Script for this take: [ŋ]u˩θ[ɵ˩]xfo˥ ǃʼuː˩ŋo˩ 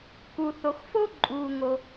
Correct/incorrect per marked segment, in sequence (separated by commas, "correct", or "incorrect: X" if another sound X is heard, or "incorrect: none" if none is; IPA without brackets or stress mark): incorrect: k, incorrect: o˩